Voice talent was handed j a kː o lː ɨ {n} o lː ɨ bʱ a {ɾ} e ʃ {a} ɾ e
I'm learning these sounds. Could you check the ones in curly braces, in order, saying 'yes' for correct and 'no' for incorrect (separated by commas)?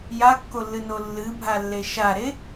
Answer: yes, no, yes